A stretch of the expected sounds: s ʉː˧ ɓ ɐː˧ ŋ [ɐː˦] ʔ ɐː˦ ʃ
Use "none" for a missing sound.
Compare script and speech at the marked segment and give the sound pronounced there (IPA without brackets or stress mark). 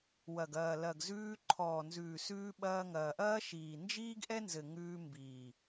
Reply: ɐː˨